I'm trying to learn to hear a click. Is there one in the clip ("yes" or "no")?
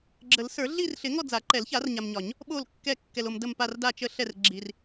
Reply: yes